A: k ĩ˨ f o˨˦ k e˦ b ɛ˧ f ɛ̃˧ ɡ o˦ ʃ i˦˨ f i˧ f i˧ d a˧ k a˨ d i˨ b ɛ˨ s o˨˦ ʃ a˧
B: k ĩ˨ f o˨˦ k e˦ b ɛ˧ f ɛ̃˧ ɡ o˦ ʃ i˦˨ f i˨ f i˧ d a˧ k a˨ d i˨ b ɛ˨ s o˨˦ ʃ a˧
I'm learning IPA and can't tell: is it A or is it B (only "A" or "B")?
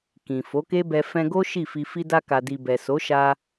A